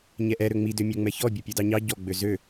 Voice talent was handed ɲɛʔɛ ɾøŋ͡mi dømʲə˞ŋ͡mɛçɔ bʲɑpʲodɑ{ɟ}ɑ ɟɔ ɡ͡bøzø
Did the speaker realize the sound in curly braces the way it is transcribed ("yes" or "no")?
no